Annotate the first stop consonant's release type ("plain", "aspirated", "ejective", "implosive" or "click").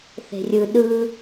implosive